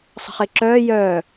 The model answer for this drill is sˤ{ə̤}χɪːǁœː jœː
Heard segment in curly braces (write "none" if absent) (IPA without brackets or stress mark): ə̤